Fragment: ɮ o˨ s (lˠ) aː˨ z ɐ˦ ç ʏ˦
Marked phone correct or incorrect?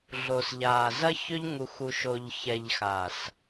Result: incorrect: ʎ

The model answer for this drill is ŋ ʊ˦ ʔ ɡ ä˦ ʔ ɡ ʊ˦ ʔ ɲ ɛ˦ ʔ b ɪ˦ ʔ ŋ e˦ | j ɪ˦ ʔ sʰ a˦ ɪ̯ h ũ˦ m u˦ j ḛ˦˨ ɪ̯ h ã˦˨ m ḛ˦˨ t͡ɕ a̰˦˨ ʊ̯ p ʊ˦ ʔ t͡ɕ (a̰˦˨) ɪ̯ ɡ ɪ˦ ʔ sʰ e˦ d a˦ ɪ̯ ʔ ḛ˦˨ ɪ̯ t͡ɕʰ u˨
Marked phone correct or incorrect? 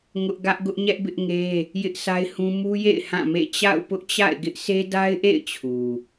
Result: correct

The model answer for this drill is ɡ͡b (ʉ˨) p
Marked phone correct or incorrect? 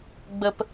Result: incorrect: ə˨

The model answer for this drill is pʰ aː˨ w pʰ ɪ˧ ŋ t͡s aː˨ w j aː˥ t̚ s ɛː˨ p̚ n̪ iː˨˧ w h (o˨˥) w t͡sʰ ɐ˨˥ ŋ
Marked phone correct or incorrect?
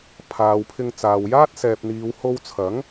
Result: incorrect: o˧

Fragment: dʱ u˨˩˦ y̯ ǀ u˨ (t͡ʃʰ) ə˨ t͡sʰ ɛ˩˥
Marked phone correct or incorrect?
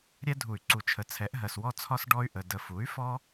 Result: correct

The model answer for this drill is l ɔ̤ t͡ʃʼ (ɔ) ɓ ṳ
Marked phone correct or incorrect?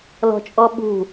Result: correct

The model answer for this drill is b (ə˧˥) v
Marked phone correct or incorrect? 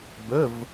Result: incorrect: ə˧˥˧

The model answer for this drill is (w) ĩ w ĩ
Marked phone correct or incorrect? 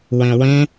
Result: correct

